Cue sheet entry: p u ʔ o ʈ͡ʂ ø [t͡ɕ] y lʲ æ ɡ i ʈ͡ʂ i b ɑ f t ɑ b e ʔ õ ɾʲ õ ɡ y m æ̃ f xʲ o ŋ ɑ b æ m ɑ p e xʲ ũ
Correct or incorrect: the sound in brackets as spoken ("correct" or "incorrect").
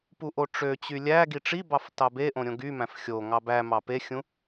correct